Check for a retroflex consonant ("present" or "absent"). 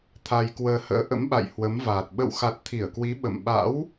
absent